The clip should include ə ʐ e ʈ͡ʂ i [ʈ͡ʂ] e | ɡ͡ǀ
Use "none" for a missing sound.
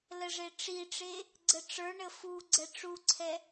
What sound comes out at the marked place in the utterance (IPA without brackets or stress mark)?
ʈ͡ʂ